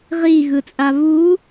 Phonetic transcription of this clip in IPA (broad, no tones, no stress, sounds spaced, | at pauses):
ʁ i ɣ ɯ t͡sʼ a β u